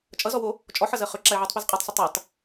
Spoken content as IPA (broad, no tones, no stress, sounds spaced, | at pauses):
t͡ʃʼ ʌ z ɔ w o | t͡ʃʼ ɔ ħ ʌ z ɜ χ ø ǁ a ɪ̯ ʕ əː tˤ p ɛ z qʼ ɜ tˤ sˤ ə tˤ ɛ tˤ